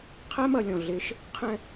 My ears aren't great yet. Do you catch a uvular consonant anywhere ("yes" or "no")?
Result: yes